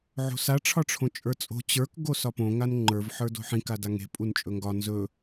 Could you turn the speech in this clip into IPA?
ʕo̤sa ʈ͡ʂʰɒʈ͡ʂʰõt͡ʃʼə˞t͡sʼo̤ t͡ɕə˞k ɡosɒpõ ŋanŋ͡ǃə˞v ħə˞do̤ħĩ kadaŋe̤ pʼunt͡ʃʼɵŋɡɒ nzɵ

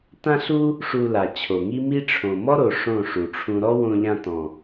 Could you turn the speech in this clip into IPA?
tã˦ɬu˦ | ʂu˧la˨ t͡ɕʰo˨ŋi˦ mi˦ʈ͡ʂʰõ˨ mɔ˦ɾo˨ ʂõ˦˨ʂu˨ʈ͡ʂʰũ˧ ɾɔ˦wõ˧ ʎã˧tɔ̃˨

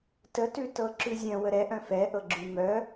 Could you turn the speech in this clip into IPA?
tətʉtɤ ǁʉzʲœ̃ wəɾɛʔœ̃ fɛ ʔɤɡ͡ǁʉmœ

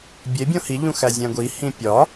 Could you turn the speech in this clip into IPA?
bʲe bʲõhiʎũ xæzʲæ̃ɡʷihĩ pʲɒ

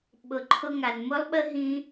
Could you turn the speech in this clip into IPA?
ɓʊ˨ǃʰʊ˧ŋa˨n mʊ˦lˠɓə˦ ɦĩ˦

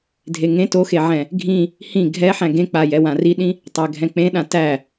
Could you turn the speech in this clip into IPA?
dʱeŋẽ toxeʕɛ̃ | ɡʱĩ | hĩ ɡʱɛħæ̃ ɡẽk͡pa jɛwãriɗĩ | tˤæɡʱɛ̃k͡pẽɗã tæ

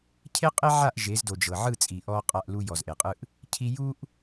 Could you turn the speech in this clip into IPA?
cʰe˦qʼe˦ʕa˦˨ʔ ʒe˨˦zdo˨ d͡ʒɤ˨ ʕɯ˦˨t͡sʼi˨ ʔɔ˦qʼa˦˨ʔlu˦ jɔ˨zʔe˨qʼɯ˦ʔ | cʰi˦ ju˦ʔ

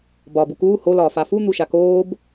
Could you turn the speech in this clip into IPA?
bɒ bukuː ho lɒːfafu n̪uʃakoːb

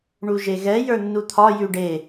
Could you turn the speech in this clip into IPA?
ɳuʒeɣɛ jə˞nːut̪ʰɒ jʉɖe

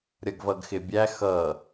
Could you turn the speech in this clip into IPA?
ɾʲʌɡvʌɡxɪbʲæ xʌ

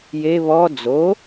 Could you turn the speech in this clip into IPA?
je βɔ d͡zo

